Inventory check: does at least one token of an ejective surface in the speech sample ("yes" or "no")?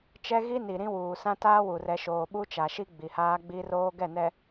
no